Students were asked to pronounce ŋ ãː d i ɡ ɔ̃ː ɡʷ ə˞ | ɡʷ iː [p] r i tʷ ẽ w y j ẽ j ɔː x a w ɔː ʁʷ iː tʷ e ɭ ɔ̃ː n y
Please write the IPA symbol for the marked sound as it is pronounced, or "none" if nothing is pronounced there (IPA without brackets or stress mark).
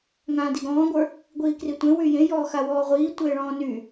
k